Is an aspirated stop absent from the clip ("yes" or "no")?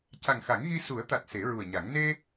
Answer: yes